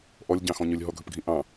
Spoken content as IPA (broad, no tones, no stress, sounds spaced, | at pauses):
ʔ ɔ lʲ ɟ ɑ̃ x ɔ̃ ɲ ɵ lʲ ɦ ɔ ɡʱ ɵ p ɡʱ ĩ ʔ ɑ̃